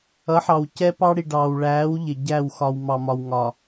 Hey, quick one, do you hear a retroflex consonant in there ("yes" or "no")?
yes